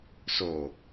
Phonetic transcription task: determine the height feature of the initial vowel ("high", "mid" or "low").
mid